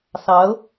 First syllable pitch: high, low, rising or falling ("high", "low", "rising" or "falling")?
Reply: rising